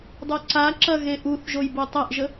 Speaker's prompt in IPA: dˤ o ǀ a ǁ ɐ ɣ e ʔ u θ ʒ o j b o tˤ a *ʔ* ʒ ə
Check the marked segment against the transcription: correct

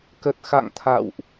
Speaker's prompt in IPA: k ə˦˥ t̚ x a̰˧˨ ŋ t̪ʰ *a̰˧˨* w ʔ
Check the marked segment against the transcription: correct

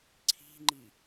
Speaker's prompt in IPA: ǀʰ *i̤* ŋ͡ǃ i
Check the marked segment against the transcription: correct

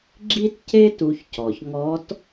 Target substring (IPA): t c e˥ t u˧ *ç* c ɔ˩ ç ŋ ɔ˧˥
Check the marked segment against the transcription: correct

